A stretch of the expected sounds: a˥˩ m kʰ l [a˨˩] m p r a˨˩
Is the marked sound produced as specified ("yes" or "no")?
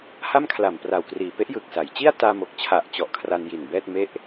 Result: yes